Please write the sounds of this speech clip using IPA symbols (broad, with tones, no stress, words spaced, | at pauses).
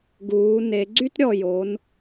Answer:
ɡuː˩˧ ne˩˧ɡ͡ǀy˥tɾʲɔ˧˩jo˩˧n